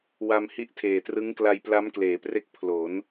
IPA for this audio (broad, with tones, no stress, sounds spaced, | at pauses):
w a˧ m h i˦˥ ʔ tʰ eː˨˩ t r ɯ˦˥ ŋ k l a˧ j p l a˦˥ m k l eː˩˦ p r e˦˥ k̚ pʰ l o˩˦ n